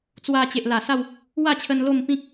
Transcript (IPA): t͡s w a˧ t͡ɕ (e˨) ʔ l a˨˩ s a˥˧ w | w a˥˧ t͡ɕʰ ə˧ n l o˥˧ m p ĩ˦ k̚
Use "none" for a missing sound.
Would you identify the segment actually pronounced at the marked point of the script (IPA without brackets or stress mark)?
e˨